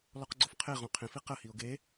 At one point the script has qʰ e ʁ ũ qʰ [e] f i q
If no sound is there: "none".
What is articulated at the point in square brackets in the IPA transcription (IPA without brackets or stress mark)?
ẽ